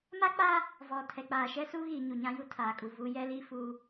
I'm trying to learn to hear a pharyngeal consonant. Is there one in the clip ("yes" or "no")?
no